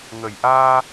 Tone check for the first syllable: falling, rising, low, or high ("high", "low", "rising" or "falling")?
low